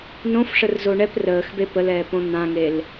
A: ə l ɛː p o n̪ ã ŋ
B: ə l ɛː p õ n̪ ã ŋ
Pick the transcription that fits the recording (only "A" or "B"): B